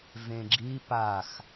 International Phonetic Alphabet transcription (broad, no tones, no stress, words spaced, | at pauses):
vẽɡ͡ǁi pax